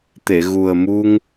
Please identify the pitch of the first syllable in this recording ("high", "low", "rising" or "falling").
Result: low